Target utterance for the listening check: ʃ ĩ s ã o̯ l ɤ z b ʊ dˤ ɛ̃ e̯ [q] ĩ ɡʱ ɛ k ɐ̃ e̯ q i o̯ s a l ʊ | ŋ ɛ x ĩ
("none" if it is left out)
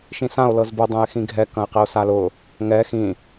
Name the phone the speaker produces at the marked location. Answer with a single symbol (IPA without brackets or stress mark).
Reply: x